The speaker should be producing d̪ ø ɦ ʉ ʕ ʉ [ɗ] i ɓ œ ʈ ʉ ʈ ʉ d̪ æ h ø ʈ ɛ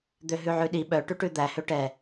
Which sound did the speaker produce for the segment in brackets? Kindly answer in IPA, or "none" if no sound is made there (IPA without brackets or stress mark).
ɗ